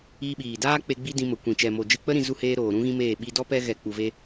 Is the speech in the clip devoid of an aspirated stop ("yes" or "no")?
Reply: yes